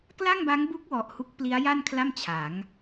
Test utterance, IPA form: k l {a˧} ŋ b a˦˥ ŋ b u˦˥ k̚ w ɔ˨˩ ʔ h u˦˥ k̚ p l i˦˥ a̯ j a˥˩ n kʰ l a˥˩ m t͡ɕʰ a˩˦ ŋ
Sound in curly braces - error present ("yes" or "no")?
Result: yes